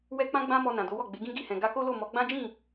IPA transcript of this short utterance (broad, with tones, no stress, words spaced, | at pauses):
wɛ˦k͡pã˦ɡ͡bã˦mɔ˧ nã˨do˨˦wɔ˦˨ ɡ͡be˨˦ɡĩ˦ɡi˦˨hɛ̃˨ ɡa˧ko˦lo˦˨ mɔ˨˦ɡ͡bã˦d͡ʒĩ˦˨